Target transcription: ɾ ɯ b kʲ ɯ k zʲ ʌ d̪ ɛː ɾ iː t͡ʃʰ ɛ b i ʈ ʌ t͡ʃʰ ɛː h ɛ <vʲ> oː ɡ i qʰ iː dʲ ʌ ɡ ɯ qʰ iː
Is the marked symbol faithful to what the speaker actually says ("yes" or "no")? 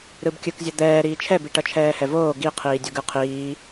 no